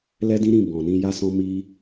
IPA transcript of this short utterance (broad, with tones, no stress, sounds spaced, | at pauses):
l ɛ˦ d ĩ˦ ɾ ĩ˦˨ b ɔ̃˨ n ĩ˧ j a˦ s ɔ̃˦ m i˦